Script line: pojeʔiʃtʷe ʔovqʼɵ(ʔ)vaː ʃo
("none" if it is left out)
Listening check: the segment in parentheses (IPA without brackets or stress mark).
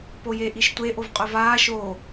none